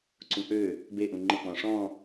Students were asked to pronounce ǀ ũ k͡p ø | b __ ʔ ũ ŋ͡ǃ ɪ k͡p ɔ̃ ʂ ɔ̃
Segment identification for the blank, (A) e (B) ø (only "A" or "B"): A